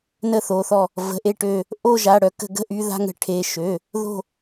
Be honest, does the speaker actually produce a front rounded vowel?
yes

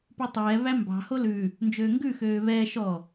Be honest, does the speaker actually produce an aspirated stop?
no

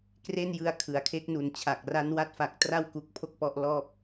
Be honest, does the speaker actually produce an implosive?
no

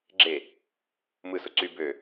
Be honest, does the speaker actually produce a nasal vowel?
no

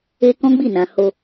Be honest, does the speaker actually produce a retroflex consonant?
no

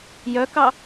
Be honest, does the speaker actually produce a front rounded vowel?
yes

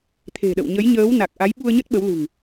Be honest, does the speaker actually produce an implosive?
yes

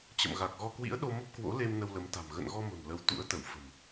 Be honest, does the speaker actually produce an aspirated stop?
no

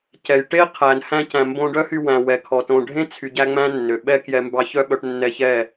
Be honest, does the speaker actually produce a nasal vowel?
yes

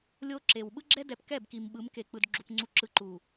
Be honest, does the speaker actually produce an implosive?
yes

